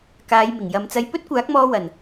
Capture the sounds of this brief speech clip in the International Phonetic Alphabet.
k aː˨˧ j m ɪ˨˩ ŋ j ɐ˨˧ m t͡s ɐ˧ j p ɵ˥ t̚ kʷ aː˨˥ k̚ m ɔː˧ w ɐ˨˩ n

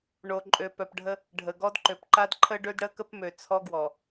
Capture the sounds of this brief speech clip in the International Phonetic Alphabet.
ɳ o˨ ǃʼ ø˨ p œ˨ p ɖʱ ə˦ | ɖʱ ə˨ ɡ ɔ˦ d ǃ ø˨ p ǃ a˦ d ǃʰ ə˦ ɖ ø˦ d ɽ ə˦ k ə˦ p m ø˨ t͡sʰ ɔ˦ ɡ w ɔ˨

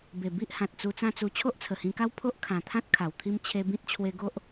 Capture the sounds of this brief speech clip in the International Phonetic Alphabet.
b e˨˩ b i˦ ʔ h ã˨ t̚ t͡s u˧ t͡s ã˦ t͡s u˧ t͡ɕʰ o˦ ʔ t͡sʰ ə˨˩ h ĩ˧ k a˦ w pʰ o˦ ʔ kʰ ã˨˩ t̪ʰ ã˦ t̚ kʰ a˨˩ w t̪ʰ i˦ m t͡ɕʰ e˧ b ĩ˦ t̚ t͡ɕʰ w e˧ ɡ o˦ ʔ

